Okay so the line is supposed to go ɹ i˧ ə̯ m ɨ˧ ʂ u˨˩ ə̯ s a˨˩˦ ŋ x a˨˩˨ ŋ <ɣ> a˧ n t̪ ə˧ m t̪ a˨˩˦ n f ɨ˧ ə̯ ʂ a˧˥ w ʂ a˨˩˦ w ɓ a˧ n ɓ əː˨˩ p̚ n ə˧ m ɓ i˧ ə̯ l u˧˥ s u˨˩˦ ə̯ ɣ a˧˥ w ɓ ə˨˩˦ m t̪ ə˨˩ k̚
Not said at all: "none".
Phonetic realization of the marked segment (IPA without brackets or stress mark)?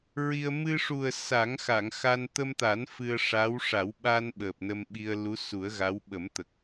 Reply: x